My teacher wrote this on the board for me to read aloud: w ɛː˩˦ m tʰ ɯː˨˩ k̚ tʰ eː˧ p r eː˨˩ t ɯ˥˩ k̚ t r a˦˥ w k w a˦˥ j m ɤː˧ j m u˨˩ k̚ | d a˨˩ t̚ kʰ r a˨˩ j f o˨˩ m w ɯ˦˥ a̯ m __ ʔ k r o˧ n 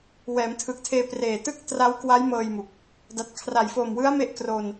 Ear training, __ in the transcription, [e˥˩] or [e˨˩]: e˥˩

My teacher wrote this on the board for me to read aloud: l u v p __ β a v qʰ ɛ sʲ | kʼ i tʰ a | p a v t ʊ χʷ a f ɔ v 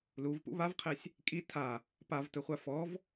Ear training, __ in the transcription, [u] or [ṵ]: ṵ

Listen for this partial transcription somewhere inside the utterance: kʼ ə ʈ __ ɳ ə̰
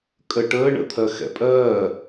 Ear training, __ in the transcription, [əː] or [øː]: əː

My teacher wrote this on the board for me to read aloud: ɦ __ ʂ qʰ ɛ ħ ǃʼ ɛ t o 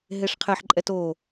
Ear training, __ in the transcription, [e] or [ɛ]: e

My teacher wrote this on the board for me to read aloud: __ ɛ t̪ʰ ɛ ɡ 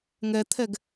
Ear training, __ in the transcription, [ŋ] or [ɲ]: ŋ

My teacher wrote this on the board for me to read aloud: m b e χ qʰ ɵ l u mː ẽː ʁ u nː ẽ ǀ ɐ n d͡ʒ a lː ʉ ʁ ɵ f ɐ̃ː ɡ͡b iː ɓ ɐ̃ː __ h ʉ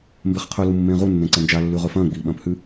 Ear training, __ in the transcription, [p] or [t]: p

